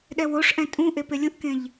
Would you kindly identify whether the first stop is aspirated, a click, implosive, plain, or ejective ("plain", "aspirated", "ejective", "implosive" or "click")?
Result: implosive